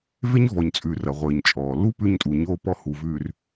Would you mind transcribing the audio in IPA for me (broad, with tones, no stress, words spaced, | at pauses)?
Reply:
ve˦ɲvɔ˨ɲt͡sʼʉː˨r ɐ˨ʁʷɘː˨ɲt͡ʃʼɔː˨ lu˦ pʉ˦ɲtʼu˨ɲoː˦ pɔ˦hu˨vʉː˨r